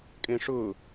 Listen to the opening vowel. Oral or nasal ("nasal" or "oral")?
nasal